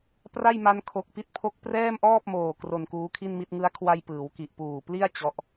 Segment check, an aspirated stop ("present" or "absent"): present